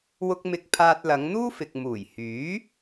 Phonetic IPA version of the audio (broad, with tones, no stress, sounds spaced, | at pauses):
w ʊ˧ k̚ m ɪ˧ k̚ pʰ aː˧ t̚ l ɐ˨˧ ŋ n̪ uː˥ f ɪ˨ k̚ m uː˨˩ j h yː˨˥